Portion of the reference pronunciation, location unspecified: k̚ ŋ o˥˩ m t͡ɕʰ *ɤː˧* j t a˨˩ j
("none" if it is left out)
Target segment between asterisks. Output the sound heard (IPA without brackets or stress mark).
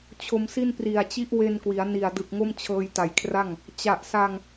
ɤː˧